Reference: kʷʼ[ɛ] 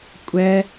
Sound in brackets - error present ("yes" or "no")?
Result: no